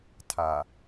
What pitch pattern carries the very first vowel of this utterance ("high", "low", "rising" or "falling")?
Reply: low